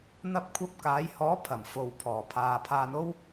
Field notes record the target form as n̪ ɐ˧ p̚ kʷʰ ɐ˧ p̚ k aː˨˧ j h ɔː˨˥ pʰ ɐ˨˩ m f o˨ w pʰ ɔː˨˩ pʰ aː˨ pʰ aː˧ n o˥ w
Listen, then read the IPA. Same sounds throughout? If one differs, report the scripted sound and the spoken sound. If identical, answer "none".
none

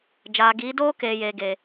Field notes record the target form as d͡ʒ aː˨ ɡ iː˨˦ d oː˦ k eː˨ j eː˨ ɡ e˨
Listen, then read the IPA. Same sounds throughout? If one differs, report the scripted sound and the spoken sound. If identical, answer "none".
none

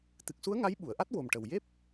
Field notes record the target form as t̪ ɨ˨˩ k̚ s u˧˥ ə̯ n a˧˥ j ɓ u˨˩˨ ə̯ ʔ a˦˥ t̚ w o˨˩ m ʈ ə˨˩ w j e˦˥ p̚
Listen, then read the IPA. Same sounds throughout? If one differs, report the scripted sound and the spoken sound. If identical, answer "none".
n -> ŋ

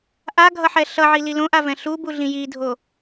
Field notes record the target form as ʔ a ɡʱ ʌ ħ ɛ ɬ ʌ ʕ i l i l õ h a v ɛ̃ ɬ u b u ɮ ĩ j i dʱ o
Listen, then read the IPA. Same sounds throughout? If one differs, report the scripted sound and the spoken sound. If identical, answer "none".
h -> ʔ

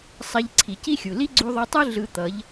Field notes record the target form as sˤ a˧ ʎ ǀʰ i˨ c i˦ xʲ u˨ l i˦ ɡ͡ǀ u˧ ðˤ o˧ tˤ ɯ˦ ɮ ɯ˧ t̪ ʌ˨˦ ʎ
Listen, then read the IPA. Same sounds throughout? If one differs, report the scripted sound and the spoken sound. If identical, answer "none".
none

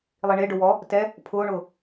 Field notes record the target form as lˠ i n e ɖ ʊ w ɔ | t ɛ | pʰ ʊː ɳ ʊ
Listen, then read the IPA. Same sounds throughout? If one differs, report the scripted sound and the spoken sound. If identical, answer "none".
n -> ɳ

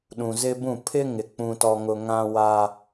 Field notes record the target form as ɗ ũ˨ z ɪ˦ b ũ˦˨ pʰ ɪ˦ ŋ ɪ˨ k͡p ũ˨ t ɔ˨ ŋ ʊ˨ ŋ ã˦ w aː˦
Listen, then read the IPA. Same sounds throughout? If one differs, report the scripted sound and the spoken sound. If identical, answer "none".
none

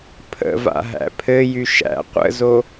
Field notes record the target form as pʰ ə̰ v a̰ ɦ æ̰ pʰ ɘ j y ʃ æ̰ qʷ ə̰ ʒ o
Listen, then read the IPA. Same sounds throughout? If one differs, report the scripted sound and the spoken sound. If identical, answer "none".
ʒ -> z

